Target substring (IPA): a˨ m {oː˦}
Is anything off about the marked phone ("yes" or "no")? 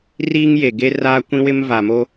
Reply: yes